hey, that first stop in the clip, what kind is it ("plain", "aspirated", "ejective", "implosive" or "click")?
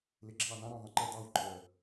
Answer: click